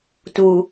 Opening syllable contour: low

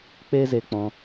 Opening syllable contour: high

